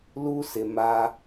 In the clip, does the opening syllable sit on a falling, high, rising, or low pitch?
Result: high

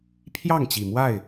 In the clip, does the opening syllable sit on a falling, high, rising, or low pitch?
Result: falling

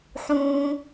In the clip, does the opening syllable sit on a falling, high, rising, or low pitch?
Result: low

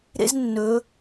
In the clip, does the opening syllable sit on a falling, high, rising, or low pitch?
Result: high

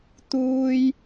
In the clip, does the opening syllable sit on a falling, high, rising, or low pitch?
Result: high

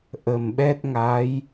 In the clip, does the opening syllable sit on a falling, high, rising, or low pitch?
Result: low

